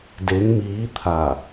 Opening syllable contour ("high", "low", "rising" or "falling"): rising